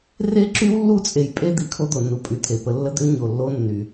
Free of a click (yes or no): no